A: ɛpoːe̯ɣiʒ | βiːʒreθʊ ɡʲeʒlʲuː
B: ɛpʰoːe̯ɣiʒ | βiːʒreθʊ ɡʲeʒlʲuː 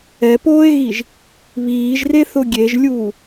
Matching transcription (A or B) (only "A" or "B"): A